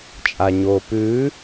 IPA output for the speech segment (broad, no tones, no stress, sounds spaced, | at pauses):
t͡ʃʼ a ɲ oː p ʉː